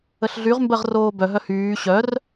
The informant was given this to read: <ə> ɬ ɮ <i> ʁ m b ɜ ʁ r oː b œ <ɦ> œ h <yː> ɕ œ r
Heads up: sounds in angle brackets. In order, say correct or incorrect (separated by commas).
correct, incorrect, correct, correct